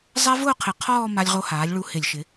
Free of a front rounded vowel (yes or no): yes